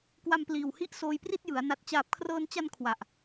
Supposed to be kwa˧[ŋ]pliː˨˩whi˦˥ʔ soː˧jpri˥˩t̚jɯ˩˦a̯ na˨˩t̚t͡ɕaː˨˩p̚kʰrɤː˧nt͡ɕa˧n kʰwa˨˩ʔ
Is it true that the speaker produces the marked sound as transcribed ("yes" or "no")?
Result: no